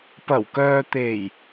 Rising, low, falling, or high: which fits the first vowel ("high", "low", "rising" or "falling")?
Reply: low